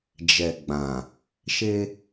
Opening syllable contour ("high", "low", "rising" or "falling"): low